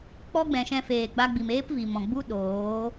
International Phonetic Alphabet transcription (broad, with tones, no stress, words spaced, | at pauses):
k͡pɔ˦ɡ͡bɛ̃˨ʃɛ̃˧feː˨ ɡ͡ba˧ɡ͡bi˨meː˦p vi˨ mɔ̃˨ɡ͡bu˦ ɗoː˨˦